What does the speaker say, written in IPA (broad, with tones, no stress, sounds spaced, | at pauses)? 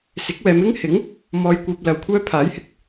s ɪ˨˥ k̚ w ɛː˨˧ m ɪ˥ ŋ h ɪ˨˥ ŋ | m ɔː˧ j kʷ œː˧ p̚ l ɐ˨ w kʷʰ œː˥ pʰ aː˨˥ j h ɪ˨ k̚